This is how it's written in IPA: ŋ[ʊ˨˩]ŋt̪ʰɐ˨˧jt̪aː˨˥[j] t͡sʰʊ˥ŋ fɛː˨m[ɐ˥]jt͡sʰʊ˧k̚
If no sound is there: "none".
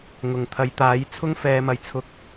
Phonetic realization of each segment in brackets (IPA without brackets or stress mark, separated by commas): ʊ˨˩, j, ɐ˨˩